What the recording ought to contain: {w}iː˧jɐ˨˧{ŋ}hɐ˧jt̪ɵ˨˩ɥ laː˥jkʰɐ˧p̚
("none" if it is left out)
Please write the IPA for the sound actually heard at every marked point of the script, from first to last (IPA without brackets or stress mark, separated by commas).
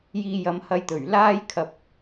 j, m